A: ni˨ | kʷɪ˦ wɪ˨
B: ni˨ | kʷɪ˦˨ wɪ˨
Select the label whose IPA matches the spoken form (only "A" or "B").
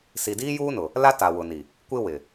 A